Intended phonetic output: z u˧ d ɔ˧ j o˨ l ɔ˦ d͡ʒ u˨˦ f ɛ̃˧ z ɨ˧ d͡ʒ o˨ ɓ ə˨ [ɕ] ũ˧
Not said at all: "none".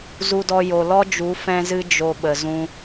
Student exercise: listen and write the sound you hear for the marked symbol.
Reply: z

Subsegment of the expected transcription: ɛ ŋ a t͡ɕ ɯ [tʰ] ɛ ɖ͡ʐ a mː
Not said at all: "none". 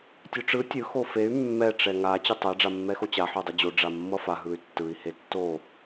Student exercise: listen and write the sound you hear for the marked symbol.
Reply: tˤ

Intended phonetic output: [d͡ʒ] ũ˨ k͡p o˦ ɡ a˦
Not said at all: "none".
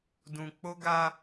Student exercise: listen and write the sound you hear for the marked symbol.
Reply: d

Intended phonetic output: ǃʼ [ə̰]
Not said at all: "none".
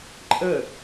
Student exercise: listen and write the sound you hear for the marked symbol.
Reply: ə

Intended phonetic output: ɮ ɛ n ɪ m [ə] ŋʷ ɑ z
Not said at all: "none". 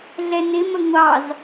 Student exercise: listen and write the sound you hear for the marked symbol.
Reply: ə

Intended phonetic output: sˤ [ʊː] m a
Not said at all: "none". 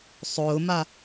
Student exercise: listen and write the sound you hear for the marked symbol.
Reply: ʊː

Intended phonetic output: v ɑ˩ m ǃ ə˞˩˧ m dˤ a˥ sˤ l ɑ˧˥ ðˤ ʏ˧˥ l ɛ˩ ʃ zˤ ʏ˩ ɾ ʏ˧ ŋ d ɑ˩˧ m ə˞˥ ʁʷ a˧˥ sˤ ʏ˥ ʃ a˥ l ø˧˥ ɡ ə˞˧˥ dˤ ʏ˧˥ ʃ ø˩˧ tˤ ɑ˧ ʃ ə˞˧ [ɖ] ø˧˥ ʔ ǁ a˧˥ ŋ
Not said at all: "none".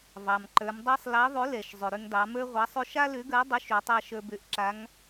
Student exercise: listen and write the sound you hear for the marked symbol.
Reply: b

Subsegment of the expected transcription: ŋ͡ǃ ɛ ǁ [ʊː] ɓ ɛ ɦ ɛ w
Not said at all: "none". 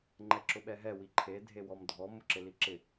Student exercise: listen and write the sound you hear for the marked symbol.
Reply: ʊ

